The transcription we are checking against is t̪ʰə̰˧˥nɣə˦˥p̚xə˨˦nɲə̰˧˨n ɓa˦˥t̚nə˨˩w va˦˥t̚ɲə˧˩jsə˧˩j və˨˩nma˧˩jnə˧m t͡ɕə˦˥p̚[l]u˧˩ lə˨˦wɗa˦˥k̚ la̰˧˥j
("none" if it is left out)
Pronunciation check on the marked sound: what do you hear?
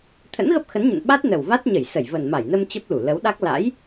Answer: l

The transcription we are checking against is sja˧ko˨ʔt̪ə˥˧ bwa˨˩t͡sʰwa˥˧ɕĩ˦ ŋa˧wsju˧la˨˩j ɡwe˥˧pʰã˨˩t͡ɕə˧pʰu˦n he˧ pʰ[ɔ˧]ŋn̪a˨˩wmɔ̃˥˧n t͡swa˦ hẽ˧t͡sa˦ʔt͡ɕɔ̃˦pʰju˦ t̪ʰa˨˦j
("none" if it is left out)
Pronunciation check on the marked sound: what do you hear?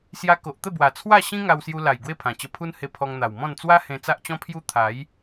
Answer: ɔ˧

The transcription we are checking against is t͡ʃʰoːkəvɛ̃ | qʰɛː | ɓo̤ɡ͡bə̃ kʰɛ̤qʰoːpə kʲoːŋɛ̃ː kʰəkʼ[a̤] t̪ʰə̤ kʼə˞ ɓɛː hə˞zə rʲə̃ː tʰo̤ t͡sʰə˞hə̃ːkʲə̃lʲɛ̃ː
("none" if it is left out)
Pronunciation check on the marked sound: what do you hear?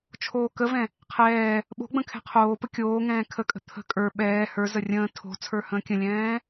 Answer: ə̤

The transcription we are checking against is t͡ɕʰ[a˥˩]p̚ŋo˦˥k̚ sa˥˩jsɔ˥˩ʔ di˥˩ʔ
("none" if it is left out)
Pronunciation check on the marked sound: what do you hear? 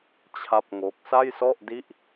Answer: a˥˩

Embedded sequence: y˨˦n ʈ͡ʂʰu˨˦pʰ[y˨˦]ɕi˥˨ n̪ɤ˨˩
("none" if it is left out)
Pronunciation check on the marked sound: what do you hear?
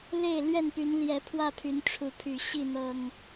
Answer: y˨˩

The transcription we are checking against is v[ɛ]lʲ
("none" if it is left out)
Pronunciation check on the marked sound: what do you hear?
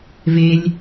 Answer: e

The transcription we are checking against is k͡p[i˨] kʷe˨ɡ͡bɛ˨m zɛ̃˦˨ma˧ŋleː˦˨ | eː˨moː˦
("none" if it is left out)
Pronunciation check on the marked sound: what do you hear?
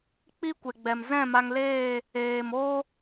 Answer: i˦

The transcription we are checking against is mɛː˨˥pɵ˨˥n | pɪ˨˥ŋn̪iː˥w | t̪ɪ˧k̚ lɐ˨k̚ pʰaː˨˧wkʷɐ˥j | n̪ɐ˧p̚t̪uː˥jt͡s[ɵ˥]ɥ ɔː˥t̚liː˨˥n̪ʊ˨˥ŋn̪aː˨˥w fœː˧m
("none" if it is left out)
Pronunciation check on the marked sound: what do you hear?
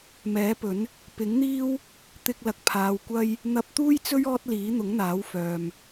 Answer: ɵ˥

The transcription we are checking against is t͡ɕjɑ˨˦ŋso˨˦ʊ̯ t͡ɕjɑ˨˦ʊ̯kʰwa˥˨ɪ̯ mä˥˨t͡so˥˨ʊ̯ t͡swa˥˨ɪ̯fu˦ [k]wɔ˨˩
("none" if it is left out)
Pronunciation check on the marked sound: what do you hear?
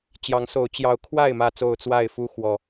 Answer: x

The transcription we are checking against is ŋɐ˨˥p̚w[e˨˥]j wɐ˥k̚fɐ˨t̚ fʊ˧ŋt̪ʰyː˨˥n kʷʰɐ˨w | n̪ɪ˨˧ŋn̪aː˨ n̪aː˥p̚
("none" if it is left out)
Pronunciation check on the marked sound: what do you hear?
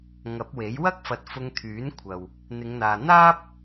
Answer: e˨˥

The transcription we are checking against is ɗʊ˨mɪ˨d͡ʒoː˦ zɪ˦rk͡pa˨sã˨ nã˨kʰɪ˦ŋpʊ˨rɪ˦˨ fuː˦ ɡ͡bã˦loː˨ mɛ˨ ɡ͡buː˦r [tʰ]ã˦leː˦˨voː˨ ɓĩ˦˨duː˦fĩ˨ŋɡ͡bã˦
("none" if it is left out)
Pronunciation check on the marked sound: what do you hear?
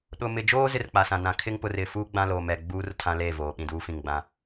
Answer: tʰ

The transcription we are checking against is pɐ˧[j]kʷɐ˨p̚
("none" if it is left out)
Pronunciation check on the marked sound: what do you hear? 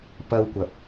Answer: w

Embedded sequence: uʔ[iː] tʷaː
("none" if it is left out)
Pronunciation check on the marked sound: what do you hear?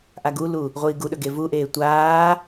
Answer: eː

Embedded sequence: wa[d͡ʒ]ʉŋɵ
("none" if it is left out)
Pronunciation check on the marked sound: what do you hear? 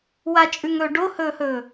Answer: t͡ʃʼ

